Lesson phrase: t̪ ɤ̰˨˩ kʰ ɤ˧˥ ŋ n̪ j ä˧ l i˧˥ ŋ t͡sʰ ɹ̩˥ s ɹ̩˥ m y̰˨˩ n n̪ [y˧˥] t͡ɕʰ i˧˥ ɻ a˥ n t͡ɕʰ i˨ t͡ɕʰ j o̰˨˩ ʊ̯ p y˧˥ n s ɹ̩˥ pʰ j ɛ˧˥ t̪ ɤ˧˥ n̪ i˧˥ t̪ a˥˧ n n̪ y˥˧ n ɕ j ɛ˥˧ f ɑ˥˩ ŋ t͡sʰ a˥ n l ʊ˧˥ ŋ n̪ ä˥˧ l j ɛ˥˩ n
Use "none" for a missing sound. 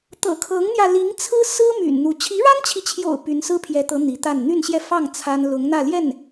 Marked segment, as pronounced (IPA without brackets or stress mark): u˧˥